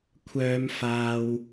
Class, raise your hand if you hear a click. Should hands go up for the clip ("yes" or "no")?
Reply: no